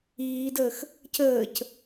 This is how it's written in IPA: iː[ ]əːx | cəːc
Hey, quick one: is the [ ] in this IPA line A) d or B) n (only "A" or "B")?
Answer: A